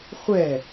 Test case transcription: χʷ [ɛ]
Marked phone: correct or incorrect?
correct